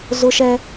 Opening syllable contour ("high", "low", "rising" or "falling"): high